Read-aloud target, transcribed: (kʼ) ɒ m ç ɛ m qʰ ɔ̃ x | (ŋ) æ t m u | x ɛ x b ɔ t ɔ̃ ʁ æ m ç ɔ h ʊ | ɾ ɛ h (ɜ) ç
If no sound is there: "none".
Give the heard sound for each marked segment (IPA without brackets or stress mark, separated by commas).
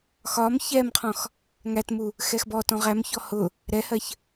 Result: x, ŋ, ɜ